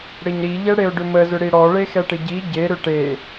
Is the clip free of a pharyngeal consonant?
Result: yes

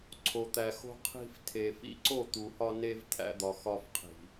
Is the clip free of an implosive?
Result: yes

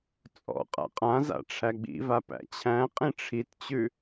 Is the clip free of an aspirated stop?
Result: no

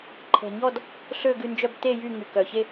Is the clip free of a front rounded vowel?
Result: no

